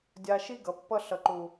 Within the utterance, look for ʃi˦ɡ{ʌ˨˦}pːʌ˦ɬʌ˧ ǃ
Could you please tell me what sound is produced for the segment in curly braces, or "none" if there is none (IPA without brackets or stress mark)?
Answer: ʌ˨˦